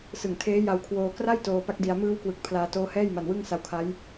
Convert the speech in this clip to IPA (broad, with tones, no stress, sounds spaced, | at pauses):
s ɯ˨˩ ŋ tʰ eː˦˥ j a˧ w kʰ w oː˧ k r a˥˩ j t oː˧ p a˦˥ k̚ d i˧ a̯ m ɯː˦˥ w k w ɯ˨˩ k̚ pʰ l aː˧ t oː˦˥ h ɛː˥˩ j m a˧ n w ɯ˥˩ ŋ s a˦˥ w kʰ a˦˥ j